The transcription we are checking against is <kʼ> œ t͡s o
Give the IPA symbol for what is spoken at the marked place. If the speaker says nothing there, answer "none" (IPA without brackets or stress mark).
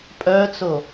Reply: pʼ